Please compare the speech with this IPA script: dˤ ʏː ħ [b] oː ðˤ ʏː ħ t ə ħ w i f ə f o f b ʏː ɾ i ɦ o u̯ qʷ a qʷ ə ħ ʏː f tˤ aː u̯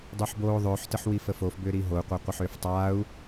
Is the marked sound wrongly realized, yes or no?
no